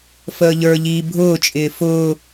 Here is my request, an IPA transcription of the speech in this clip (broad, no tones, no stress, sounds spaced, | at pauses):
f əː ʎ ə˞ ʎ iː bʱ ʊː t͡ʃʼ ɪː f ʊː